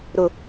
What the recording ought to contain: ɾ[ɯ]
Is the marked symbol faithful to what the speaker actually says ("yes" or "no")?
no